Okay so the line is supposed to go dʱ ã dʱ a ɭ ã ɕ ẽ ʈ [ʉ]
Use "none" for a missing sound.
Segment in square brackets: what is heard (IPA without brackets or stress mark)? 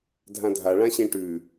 ʉ